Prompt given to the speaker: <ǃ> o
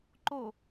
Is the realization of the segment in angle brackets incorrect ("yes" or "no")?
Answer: no